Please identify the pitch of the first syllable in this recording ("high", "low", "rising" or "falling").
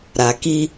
low